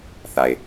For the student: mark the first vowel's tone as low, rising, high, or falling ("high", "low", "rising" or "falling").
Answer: low